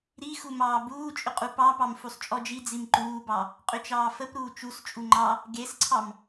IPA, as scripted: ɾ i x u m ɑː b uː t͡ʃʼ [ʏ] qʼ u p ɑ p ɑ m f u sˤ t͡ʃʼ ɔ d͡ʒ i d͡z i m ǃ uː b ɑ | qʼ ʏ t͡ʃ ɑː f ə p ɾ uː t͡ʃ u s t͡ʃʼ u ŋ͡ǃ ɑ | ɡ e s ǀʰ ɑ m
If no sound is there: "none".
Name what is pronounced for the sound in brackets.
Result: ʏ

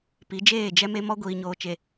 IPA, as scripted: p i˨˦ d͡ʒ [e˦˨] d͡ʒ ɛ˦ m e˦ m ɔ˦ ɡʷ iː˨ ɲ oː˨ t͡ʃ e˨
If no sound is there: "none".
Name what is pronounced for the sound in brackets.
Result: eː˦˨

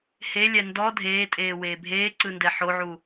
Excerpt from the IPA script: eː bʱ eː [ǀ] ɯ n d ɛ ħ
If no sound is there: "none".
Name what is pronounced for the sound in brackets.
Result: ǀ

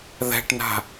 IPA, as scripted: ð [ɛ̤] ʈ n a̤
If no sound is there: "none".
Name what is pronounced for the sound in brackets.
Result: ɛ̤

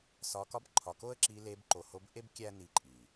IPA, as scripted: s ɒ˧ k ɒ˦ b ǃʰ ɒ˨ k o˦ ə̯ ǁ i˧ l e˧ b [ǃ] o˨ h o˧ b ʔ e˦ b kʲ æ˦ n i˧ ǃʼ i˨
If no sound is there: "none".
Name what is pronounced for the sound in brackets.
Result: ǃ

